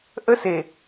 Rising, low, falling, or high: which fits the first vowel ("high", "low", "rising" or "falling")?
high